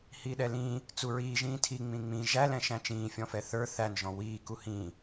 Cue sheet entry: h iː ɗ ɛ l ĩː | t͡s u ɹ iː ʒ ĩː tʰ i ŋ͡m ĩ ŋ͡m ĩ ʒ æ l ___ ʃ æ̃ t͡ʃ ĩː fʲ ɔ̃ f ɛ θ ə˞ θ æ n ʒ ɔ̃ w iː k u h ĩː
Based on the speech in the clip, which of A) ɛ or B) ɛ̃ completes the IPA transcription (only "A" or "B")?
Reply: B